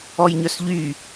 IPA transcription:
ɔ j ɲ œ s ʎ y

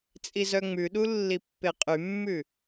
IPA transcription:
t͡sʼ i z œ ŋ͡m ʉ ɗ u lː i pː e qʼ y mː ʉ

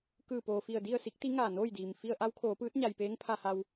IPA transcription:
k ɯː˧˩ p oː˩ f i˧˩ ə̯ d i˥˨ ə̯ s i˧˥ k̚ t̪ i˧˥ ŋ aː˧˩ n oː˥˨ j d iː˩ m f i˧ ə̯ ʔ a˧˥ w kʰ oː˩˧ p ɯː˧˥ t̚ ɲ a˩ j p eː˧˥ ŋ pʰ a˧ h a˧ w

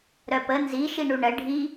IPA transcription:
ɾ œ p ə n z i ʃ i ɳ u ɳ ə ɖʱ i

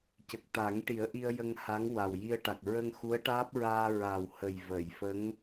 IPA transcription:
c ə˨˩ k̚ t̪ a˨˩˦ ŋ ʈ i˨˩˦ ə̯ ʔ i˧ ə̯ j ə˧ ŋ h a˧˥ ŋ w a˨˩ w j i˧ ə̯ ʈ a˨˩ k̚ ɹ ə˧ ŋ x u˧˥ ə̯ ʈ aː˦˥ p̚ ɹ aː˧ ɹ a˨˩ w h ə˨˩ j v ə˨˩˨ j f ə˧˥ ŋ

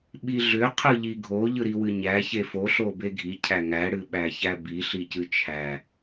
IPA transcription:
ɓ i ɮ ʏ qʰ ɯ ʎ i ɡʱ o ʎ ɯ ɾ i w ɨ ɲ æ ç e f o ɬ o b e ɡʱ i cʰ æ ŋ æ ɽ ɨ ɓ æ ç æ b i ɬ i c ɨ t͡ʃʰ æ

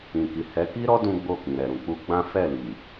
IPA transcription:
ĩ˨ k i˨ h ɛ˨˦ k i˦ ɾ ɔ˦ d ũ˦ ɡ͡b o˦˨ k ĩ˨ ɾ ɛ˨ ɾ ũ˨ k͡p u˧ ɡ͡b ã˦ f ɛ˦˨ l i˨

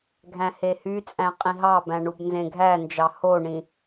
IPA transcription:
ɡʱ æ̃ h e h y t͡sʼ æ̃ qʼ ĩ ɦ ɑ b æ̃ ɳ u b n z ẽ ɡʱ æ n d͡ʒ ɑ h o ɳ ĩ

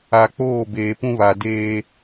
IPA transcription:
a˨ k͡p oː˦˨ b eː˨ p ũ˦ β a˨ d eː˦

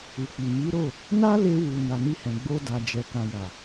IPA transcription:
u˨ k͡p i˨ m i˨˦ ɾ o˦˨ | n a˦ l e˧ w u˨ n a˨ n i˧ h ɛ̃˨ ɡ͡b o˧ d a˨ d͡ʒ ɛ˨ k ã˨ j a˨

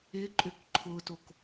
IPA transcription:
ɪ ǃʼ ʏ k ǃʰ ʊ t o k

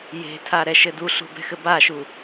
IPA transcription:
j e̤ tʰ a ɾ ɛ ʃ ɘ d u ɬ ṳ b ɛ̤ x ɘ b a ʃ u

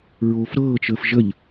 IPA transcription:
ɹ oː f ɾ ɤː t͡ʃ əː f ʒ ə ʎ

